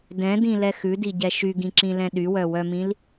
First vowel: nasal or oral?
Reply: nasal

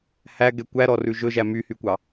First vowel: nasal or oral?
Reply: oral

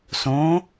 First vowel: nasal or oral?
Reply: nasal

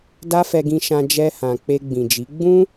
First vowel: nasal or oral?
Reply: oral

